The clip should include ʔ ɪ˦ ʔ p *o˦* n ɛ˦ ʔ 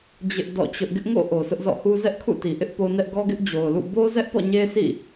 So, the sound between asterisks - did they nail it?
yes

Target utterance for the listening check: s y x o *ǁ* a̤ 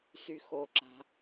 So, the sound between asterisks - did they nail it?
yes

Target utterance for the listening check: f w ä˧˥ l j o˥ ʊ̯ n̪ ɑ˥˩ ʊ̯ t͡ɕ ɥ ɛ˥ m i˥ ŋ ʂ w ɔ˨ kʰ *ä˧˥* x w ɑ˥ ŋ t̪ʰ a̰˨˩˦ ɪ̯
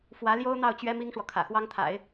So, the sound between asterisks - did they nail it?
no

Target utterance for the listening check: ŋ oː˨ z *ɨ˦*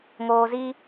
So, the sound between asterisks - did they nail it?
no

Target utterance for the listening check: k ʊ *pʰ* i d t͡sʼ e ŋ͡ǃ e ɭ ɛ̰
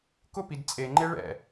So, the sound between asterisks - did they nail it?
no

